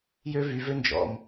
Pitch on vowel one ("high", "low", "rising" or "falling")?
high